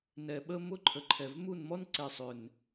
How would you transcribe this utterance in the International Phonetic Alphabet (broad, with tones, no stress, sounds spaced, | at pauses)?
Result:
n ɛ˨ ɓ ə˧ m ʊ˧ ǃʰ ə˨ ǃʰ ɛ˨ v m u˦˨ n m ɔ˦ n ǀ ɛ˨ sˤ ʏ˨ n